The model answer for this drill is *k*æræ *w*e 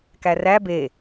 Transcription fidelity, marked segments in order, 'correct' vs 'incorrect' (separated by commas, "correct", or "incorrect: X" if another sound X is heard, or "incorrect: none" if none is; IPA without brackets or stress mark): correct, incorrect: b